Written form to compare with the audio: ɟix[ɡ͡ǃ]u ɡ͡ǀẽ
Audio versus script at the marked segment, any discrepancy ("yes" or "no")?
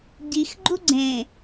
no